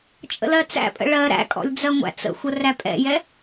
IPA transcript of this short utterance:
t͡ʃʼə̰lɜt͡sæ̰pʼə̰ ɭɜ ɾæ̰kʼɔ̰lʲ d͡zɜŋʷæ̰t͡sə̰xʷə ræpʼɛ̰jɛ

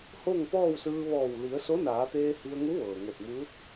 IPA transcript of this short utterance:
ho˥˨ŋpɔː˥˨wsɯː˧ ʋɔː˧˩w li˩˧ə̯so˧˥naː˩˧t̪eː˧ hi˧ə̯ŋu˧˥ʋɤː˩ ŋo˧˩t̚muː˧˥t̚

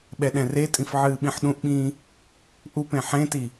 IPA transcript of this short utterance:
ɓɛɗɛ̃retʼĩf ʕɨːɓĩħɗũʔɓĩː | ʔupẽ ħẽti

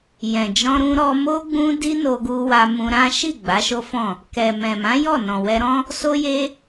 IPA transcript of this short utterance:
jɛ̃˨d͡ʒɔ̃˧ɾũ˧ ɾɔ˧mo˦ ɡ͡bũ˦ di˦no˧ɡu˧wa˧ mũ˧ɾã˦ ʃi˦˨ ɡ͡ba˨˦ʃo˦fɔ̃˦˨ | kɛ˨mɛ̃˨mã˨˦ jɔ˦˨nɔ̃˨wɛ˧ɾɔ̃˦ | so˦je˦

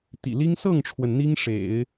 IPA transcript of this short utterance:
t̪ḭ˨˩li˥ŋ sɤ˥˩ŋʈ͡ʂʰwə˩n n̪i˥ŋ ʂḛ˨˩˦ɪ̯

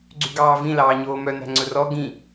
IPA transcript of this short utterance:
ɡ͡ǀyɡɑːvĩ lɑːɲoːmœ næ̤ŋ͡ǀɵrɔ ɡĩ

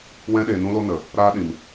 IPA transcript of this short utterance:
wɛ̃˧ɗeː˨nũ˧lo˧ nə˨ | ɾaː˦ɗĩ˨m

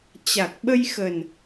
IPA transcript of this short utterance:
t͡ɕa˨˩k̚ɓə˧jxə˨˩n

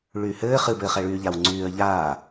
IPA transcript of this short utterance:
ɭyːhɘː χɨ bɘːχɛɭyːʎaw ŋ͡ǀyːə̯ʎaː

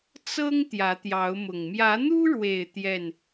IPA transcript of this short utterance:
t͡sɤ˦ŋ t̪jä˨˦t̪jɑ˨˦ʊ̯mʊ˨˩ŋ mjä˨˦n̪u˦ɻwe˨˩ɪ̯ t̪jɛ˥˨n

